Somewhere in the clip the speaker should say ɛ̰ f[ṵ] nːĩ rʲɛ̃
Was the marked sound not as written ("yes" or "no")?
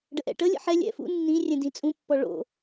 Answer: no